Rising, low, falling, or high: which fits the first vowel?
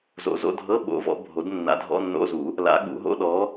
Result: rising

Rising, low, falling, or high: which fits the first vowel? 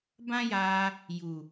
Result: high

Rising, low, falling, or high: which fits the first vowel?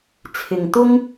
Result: low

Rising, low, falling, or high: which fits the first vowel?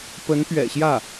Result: rising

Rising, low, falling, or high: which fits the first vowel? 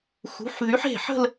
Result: rising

